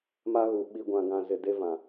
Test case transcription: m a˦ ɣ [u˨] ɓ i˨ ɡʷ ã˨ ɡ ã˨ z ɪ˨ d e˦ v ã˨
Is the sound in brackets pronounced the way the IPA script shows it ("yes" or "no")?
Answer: yes